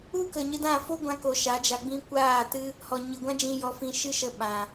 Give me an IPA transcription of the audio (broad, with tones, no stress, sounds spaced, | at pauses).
u˦ k ə˨ ɲ ɨ˧ d ã˦˨ f o˦ ɡʷ ã˧ k o˨ ʃ a˨˦ d͡ʒ a˧ ɡ͡b ĩ˦ kʷ aː˦˨ t ɨ˦ | h ɔ˨ ɲ ɨ˨ ɡʷ ã˦ d͡ʒ ĩ˧ j ɔ˧ f ĩ˧ ʃ ɨ˦ ʃ ə˧ ɓ ã˨